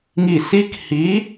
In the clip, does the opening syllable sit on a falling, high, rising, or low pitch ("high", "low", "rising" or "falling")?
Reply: falling